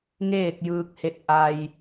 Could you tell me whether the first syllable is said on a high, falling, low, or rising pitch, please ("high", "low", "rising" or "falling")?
falling